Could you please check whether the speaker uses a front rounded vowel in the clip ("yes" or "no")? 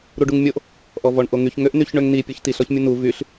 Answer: yes